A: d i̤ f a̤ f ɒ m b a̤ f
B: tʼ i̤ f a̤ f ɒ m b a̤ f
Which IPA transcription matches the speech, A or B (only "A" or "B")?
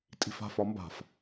B